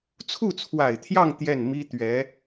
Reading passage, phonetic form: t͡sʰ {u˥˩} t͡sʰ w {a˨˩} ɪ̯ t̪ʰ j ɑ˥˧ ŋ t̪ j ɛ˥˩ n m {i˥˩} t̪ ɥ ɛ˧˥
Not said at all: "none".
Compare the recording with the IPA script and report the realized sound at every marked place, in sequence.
u˥˩, a˨˩, i˥

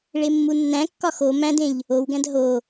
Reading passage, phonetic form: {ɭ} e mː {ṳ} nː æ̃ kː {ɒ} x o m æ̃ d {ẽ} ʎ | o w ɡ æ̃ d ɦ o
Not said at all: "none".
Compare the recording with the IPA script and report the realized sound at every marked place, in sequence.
ɭ, u, ɒ, ẽ

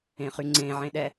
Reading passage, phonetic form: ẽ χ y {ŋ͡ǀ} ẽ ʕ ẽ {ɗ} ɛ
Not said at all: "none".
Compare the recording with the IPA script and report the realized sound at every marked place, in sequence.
ŋ͡ǀ, ɗ

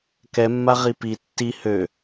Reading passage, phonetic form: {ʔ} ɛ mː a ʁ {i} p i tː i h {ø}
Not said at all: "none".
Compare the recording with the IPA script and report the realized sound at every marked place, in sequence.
k, i, ø

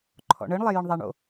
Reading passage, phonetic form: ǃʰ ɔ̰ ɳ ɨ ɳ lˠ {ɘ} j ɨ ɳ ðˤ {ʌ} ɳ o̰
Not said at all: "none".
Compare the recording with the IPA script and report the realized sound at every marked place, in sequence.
e, a

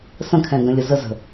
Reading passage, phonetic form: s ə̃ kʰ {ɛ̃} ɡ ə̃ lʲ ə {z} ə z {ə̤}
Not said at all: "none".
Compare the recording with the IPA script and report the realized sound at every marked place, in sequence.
ɛ̃, z, ə̤

